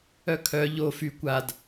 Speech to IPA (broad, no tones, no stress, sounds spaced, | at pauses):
œ kʰ œ ʎ o f y kʷ a d